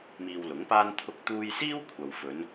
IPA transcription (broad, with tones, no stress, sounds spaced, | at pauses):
m iː˧ w l ʊ˨˥ ŋ p aː˥ n t̪ʰ ʊ˥ k̚ t̪ uː˥ j s iː˥ w kʷʰ ɐ˨ w f ɵ˨˧ n